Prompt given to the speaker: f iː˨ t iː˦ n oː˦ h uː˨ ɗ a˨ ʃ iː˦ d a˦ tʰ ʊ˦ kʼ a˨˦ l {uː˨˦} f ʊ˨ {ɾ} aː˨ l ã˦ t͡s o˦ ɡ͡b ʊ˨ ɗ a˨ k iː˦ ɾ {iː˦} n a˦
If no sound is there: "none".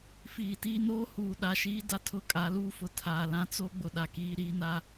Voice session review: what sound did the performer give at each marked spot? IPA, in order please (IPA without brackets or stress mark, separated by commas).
uː˦, tʰ, iː˦